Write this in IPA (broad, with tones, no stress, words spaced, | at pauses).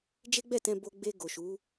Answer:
d͡ʒe˦ɡ͡bɛ˦˨tɛ̃˧ bo˧ɡ͡be˧ ɡo˨ʃu˨˦